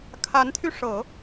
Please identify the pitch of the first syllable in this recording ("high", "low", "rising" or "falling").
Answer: rising